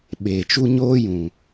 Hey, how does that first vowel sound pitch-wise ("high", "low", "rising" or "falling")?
low